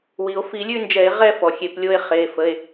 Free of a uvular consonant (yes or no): no